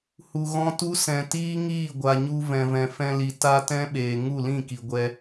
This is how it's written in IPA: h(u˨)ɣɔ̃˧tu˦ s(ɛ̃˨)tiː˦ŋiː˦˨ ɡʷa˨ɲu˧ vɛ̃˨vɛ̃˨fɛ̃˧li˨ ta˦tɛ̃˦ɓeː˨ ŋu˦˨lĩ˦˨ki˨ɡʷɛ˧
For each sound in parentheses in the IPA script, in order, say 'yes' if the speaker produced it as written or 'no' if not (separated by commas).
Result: yes, yes